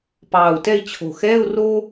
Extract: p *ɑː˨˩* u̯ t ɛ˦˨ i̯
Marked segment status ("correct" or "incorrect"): correct